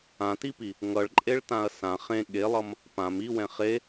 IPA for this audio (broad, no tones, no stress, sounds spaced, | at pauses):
ã t i p i | ŋ ʌ ɭ ǃʼ e ɭ t ã ɐ̯ s ã χ ẽ ɠ e lˠ ʌ m | p ã m i w ɛ̃ χ e